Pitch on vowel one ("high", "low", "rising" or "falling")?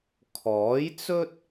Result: rising